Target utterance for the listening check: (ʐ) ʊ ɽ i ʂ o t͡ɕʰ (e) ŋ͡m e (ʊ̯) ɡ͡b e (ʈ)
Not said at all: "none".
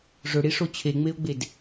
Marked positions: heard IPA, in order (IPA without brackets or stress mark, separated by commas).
ʐ, e, ʊ̯, d